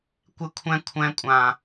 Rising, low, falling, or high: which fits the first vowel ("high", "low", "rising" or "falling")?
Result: high